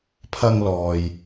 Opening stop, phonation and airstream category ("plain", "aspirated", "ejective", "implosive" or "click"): aspirated